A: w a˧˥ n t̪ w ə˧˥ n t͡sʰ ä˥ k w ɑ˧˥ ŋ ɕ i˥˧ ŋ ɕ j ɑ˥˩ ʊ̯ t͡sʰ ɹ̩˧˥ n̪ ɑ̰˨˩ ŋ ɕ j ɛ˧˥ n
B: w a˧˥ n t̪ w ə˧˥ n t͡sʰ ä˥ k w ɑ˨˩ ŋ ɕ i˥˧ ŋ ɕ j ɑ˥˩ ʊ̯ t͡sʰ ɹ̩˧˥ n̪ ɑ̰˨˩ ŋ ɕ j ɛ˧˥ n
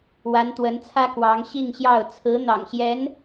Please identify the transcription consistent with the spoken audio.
A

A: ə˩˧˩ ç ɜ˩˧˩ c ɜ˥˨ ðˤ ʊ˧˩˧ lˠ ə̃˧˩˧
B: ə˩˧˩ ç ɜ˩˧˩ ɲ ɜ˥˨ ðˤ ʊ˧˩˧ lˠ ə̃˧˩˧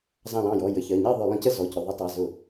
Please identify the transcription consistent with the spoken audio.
B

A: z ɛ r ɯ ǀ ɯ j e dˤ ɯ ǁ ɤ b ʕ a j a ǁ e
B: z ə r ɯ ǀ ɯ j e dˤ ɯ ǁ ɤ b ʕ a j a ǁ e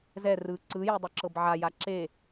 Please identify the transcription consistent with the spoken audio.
A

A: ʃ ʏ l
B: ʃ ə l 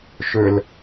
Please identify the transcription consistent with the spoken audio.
A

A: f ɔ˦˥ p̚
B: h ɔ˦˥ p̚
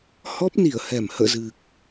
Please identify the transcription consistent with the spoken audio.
B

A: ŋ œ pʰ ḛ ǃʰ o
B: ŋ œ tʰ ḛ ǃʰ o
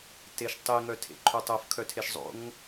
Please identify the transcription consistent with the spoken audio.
B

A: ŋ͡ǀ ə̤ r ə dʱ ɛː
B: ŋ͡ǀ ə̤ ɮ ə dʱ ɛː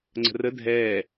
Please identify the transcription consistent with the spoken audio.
A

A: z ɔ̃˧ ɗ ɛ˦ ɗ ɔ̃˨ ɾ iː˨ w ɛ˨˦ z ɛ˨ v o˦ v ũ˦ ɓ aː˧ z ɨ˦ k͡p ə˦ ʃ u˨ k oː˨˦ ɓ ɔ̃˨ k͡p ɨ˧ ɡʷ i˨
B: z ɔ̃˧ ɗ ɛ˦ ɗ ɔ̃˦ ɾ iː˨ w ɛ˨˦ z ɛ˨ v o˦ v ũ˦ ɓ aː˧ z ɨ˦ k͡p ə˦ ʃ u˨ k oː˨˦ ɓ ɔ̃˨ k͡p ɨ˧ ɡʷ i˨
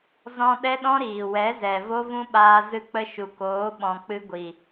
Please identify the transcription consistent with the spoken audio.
B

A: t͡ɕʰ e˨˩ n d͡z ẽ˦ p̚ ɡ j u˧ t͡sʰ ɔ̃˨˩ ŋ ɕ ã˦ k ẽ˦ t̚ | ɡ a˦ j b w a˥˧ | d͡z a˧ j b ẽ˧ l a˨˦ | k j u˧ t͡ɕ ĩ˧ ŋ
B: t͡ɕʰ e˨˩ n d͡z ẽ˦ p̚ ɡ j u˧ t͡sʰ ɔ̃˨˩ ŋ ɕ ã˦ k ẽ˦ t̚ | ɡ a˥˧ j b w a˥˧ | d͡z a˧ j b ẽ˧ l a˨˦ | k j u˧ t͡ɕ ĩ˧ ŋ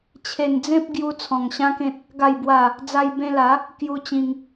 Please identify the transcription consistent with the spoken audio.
B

